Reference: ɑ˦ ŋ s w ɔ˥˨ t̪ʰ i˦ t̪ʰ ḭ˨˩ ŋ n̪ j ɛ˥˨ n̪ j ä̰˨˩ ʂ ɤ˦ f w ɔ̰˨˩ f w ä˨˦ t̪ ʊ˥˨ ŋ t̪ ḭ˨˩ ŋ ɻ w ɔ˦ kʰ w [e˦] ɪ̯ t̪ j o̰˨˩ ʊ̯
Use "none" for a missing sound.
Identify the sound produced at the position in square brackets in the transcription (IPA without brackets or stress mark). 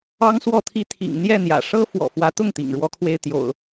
e˦